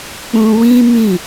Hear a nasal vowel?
yes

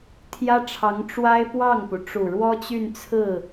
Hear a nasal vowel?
no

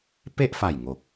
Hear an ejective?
no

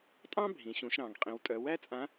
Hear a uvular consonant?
yes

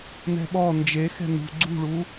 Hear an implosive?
yes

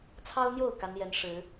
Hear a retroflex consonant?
yes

